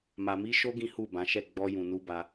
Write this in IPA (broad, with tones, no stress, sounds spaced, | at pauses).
m a˨ m i˧ ʃ o˧ ɡ ĩ˦ h u˦˨ b ã˨˦ ʃ ɛ˦˨ ɡ͡b ɔ˧ j ũ˨ n u˧ b a˧